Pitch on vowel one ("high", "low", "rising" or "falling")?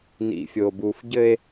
low